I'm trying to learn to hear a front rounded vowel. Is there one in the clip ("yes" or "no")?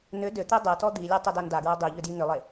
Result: yes